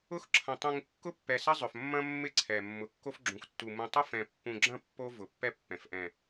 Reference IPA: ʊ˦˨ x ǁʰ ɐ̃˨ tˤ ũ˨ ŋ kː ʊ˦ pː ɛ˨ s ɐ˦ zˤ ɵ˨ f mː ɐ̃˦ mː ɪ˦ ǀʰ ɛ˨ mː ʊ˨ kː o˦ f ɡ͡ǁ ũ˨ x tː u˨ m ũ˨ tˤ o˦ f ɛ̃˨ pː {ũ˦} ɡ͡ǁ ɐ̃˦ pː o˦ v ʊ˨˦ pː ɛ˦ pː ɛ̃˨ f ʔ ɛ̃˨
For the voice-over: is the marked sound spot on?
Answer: no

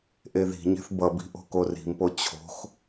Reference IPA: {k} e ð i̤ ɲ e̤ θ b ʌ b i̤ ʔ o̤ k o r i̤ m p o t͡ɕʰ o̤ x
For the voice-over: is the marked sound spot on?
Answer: no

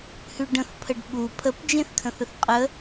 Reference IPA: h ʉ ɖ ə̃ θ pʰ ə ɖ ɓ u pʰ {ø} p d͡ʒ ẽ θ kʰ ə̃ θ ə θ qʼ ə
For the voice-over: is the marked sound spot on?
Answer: no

